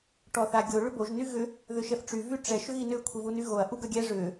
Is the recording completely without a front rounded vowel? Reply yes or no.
no